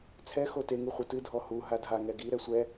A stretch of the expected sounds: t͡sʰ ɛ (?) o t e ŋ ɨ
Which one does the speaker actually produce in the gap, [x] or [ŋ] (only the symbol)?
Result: x